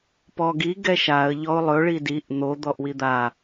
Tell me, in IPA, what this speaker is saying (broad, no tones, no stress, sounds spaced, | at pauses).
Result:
p ɔ ɡ i ɡ ɛ ʃ a ə̯ ʎ ɔ ʊ̯ lˠ ɵ ɭ i d i ʔ n̪ o d̪ ɔ ʔ w i d̪ a